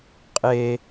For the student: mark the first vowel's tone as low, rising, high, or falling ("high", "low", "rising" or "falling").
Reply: low